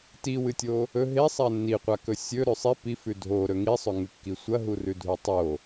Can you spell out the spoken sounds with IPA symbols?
t i w ɨ tʲ o | ɵ ɦ e sˤ a nː i qʷ a k ɵ sʲ ɵ ɾ ʉ sˤ i p i f ʉ dʱ o ɾ ɵ ŋ i sˤ ɵ ŋ ʉ kː i sʷ ɐ ɦ u r ʉ dʱ u tˤ o

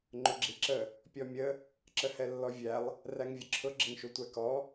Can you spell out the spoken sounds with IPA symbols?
ŋ͡ǃ ʊ ɡ͡ǁ i ǁ ə | pʲ ɔ mʲ ə | ǁ ə h ɛ lː ɔ vʲ æ lˠ | r æ ŋ vʲ ə ǁʰ ʊ ɡ͡ǁ ɪ ŋ ʃ u tʷ æ k ɔ

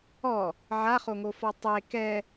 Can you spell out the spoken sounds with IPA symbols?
ɔ | ʕ a χ o ŋ o f ɔ tˤ e k ɛ

